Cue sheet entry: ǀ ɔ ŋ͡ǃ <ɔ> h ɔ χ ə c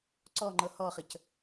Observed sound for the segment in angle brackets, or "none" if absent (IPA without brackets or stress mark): ɤ